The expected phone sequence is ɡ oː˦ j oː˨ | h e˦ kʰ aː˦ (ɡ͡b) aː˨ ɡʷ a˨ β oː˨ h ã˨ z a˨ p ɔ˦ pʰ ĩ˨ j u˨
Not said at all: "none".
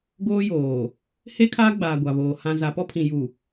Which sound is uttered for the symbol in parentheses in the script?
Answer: ɡ͡b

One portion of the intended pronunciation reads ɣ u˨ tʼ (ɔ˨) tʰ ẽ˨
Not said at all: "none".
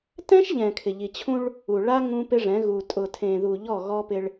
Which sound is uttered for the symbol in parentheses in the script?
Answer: ʊ˨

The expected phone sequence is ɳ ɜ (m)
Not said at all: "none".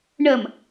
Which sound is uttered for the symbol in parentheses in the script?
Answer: m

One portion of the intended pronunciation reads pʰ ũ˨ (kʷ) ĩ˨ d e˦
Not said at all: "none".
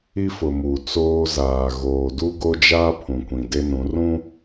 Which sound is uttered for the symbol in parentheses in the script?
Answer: kʷ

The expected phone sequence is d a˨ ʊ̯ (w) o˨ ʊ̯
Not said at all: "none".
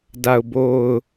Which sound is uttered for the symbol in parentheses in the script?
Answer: b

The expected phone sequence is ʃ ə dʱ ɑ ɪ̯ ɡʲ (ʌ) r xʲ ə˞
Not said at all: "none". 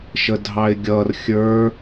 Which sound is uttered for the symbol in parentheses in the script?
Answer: ʌ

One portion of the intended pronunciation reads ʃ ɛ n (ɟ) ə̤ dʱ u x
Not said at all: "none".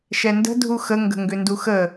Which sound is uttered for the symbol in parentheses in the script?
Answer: d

